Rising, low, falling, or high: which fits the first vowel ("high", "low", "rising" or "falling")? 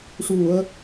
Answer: low